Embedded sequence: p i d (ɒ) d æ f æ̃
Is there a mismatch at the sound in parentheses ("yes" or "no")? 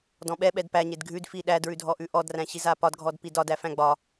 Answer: no